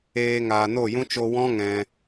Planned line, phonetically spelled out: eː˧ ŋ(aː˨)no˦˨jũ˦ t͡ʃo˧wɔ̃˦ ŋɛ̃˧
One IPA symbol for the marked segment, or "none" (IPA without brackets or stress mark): aː˨